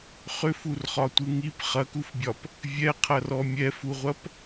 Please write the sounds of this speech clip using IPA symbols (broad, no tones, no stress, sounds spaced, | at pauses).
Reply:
χ ʏ f u r χ ɒ tʷ ɯ ŋ i p χ ɐ k u f bʲ ɒ p | vʲ ɛ qʰ ɐ r ɔ mʲ ɛ f u ʁʷ ɐ p